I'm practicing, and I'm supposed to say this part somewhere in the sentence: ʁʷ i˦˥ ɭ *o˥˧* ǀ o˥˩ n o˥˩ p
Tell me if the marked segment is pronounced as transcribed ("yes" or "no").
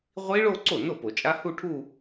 yes